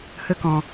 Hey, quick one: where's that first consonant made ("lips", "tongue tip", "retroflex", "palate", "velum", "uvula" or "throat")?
throat